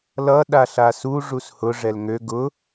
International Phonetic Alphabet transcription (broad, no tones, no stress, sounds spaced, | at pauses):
l ʌ ɗ a ɬ a s u ʐ u s h ʊ ʐ ɛ l ŋ ø ɡ ʊ